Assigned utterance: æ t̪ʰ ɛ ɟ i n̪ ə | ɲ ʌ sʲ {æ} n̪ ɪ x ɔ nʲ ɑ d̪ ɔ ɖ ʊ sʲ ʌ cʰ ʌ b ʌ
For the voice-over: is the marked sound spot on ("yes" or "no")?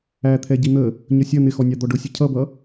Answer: no